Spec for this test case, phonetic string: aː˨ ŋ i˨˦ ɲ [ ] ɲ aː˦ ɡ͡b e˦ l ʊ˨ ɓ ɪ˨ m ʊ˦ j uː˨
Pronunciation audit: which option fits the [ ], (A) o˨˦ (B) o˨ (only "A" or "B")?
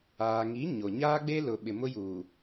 B